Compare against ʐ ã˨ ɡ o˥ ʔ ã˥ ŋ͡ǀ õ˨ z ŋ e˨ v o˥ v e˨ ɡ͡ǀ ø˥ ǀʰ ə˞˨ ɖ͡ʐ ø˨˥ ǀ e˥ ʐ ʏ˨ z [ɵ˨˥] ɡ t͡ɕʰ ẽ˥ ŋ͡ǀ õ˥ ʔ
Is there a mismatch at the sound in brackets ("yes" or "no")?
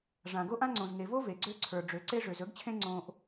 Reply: no